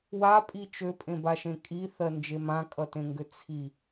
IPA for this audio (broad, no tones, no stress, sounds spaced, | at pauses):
w a pʼ i t͡ʃ ø pʼ ẽ b a ʃ ẽ kʼ i θ ɜ n d͡ʒ e m ã kʼ ʌ t ẽ ŋ ɡ ʏ t͡sʰ i